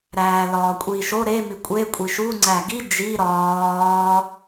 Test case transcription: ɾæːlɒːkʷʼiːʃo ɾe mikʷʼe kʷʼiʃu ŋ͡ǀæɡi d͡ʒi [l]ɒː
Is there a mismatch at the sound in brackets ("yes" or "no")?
yes